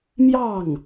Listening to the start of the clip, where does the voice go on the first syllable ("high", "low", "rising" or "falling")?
falling